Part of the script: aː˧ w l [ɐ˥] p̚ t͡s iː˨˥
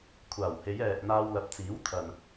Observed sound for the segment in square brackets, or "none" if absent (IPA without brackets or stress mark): ɐ˨